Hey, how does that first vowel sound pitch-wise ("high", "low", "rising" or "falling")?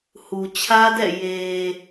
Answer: low